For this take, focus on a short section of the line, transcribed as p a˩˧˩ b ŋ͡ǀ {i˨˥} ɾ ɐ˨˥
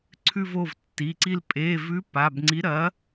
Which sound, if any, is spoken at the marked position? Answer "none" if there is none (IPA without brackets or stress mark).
i˨˥